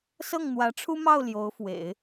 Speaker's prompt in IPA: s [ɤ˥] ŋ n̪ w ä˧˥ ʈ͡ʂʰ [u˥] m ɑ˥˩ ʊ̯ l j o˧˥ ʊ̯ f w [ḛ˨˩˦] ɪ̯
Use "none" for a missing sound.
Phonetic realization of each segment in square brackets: ɤ˥˩, u˥, ḛ˨˩˦

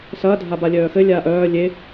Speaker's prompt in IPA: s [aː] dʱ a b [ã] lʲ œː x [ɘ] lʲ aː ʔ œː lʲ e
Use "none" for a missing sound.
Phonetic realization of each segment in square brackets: ɐː, a, ɘ

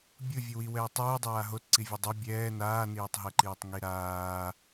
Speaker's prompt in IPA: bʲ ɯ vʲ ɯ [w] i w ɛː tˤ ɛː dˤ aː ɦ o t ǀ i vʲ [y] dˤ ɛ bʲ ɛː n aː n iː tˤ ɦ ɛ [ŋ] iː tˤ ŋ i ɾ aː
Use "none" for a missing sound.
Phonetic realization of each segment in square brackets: w, u, ǃ

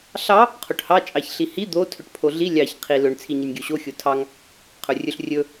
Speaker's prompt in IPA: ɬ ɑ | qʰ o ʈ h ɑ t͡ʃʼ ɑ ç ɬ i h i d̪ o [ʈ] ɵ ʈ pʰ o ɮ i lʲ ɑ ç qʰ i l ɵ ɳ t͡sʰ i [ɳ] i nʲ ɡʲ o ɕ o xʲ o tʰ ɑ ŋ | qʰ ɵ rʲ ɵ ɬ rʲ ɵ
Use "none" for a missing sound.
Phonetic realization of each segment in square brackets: tʰ, ɲ

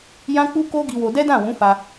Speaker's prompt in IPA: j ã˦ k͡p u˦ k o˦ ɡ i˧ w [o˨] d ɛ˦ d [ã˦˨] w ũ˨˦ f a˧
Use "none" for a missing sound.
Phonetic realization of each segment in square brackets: o˧, ã˦˨

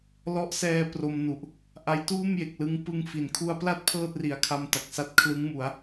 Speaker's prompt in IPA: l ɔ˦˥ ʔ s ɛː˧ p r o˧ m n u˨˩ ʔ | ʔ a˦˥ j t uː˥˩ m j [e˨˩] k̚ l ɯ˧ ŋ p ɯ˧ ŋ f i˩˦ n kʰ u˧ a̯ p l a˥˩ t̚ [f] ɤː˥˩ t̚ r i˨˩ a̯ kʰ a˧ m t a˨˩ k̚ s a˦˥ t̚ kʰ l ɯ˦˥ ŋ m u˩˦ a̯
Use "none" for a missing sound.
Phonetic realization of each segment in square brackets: e˨˩, pʰ

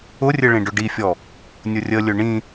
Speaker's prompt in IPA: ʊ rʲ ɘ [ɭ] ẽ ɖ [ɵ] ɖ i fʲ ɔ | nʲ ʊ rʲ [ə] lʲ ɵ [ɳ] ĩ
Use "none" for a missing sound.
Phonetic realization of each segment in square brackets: ɭ, ʊ, ə, ɳ

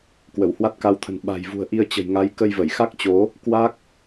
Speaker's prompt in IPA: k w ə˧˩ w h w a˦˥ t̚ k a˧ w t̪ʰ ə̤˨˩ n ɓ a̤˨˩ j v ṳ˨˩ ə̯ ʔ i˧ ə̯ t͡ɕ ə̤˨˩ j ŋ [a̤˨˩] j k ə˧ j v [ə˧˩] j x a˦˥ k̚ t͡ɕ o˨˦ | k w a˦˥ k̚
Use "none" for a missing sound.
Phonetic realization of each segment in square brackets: a˨˦, ə˧˩

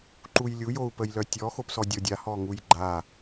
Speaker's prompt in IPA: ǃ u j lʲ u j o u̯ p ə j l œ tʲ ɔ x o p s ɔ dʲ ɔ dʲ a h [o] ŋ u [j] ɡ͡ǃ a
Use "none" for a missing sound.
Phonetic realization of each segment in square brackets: ɔ, j

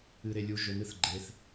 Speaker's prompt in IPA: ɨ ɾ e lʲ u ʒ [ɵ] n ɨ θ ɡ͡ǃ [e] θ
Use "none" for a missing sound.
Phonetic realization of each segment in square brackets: ɵ, e

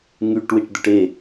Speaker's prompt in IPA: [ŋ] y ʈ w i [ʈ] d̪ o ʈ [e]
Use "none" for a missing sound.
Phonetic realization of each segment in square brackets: ŋ, ʈ, e

